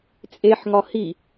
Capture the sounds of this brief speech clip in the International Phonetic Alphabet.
t͡sʼ e ħ ŋ ɒ h i

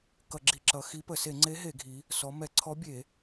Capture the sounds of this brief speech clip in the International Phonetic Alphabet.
k ʌ˧˩˧ ɡ͡ǁ i˧˩˧ ǁ ʌ˩˧ x i˧˥ p ə˧˩˧ s e˧˩˧ ŋ͡ǀ e˧˥ ɦ e˧˩˧ ɡʱ i˩˧ | s ɔ˩˧ m ɛ˧˩˧ ǀʰ ɔ˧˥ bʲ e˧˩˧

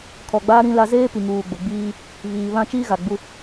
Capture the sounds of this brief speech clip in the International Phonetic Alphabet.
kʰ ɔ˨ ɡ͡b aː˦ ɾ ĩ˦ l a˦ z eː˦ p i˨ ŋ uː˨ ɡ͡b ʊ˨ ɡ͡b iː˦ | β iː˨ β ã˦ t͡ʃ iː˦ ɣ a˨ ɡ͡b u˦

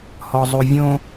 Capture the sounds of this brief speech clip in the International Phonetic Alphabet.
h ɔ zˤ u vʲ õ

